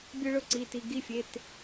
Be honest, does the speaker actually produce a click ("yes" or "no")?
yes